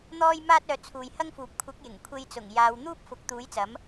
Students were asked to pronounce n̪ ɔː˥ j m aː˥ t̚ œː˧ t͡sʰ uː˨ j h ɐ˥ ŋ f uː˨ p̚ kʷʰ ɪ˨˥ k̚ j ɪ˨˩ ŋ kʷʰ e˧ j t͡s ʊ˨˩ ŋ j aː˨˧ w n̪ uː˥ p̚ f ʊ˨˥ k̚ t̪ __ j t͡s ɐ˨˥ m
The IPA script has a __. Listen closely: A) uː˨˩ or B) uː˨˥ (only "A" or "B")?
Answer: B